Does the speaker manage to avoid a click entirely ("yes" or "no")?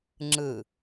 no